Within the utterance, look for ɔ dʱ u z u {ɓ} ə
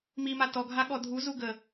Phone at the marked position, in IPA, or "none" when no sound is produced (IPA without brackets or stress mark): ɡ